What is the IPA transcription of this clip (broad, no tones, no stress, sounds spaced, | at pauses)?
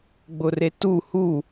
ɡ͡b ʊ r e t u h u